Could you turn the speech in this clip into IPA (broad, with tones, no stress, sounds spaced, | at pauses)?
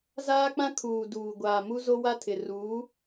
z aː˦ k͡p ã˦ kʰ uː˨ d uː˨ ɡʷ aː˨ m u˦ z o˦ w a˦ tʰ ɪ˨ r uː˨˦